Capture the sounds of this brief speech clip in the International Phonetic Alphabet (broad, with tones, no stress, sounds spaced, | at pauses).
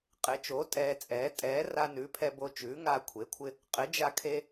qʼ ɪ˩˥ t͡ʃ oː˩˥ tʼ ɛː˧ t͡sʼ ɛː˩˥ tʼ ɛː˩˥ r a˧ n ʉ˩˥ pʰ ɛ˧ b o˧ t͡ʃ ʉː˩˥ ŋ a˧ kʷʰ e˩˥ kʷʰ ɪ˧ | qʼ ɪ˩˥ d͡ʒ a˧ kʰ e˧